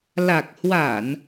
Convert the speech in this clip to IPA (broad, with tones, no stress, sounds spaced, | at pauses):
l a˨˩ k̚ h w a˧˩˨ n